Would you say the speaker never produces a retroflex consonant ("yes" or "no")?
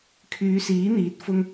yes